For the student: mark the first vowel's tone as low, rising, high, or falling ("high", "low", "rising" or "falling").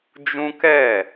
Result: high